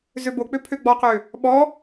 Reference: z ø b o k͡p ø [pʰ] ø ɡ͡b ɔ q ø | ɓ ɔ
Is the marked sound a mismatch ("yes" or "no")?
no